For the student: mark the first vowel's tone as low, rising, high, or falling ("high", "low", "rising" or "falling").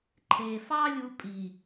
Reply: low